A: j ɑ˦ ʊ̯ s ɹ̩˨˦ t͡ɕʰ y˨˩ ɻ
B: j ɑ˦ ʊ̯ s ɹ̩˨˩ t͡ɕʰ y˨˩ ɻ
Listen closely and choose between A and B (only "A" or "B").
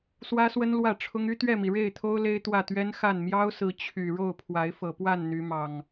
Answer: A